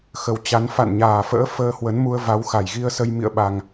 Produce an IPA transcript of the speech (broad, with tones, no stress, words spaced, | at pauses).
xə˨˩wt͡ɕa˨˦n fa̰˧˨nɲaː˨˩fə̰ː˧˥ fəː˧hwə˨˦nmu˧ə̯ va˨˦wxa˨˩jɣi˧ə̯sə˧j mḭ˧˨ə̯ɓa˨˩ŋ